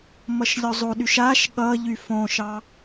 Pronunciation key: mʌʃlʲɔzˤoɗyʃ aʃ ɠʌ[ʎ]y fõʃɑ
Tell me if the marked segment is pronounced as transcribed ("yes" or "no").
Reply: yes